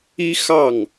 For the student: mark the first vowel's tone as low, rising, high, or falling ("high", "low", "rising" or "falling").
high